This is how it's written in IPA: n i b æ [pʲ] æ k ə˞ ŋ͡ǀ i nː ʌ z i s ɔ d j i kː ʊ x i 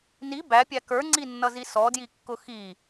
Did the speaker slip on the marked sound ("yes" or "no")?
no